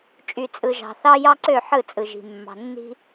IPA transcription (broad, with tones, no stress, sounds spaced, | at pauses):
t͡ʃʼ y˨ t͡sʼ ɯ˨ ʒ ɑ̤˨ θ ɑ˦ j ɑ˦ ǀ ø˦˨ ħ ɯ˦˨ t͡sʼ ɯ˨ ʒ i̤˨ mː ɑ̤˨ nː i̤˦